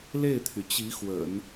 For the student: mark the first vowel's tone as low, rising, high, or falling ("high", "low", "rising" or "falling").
falling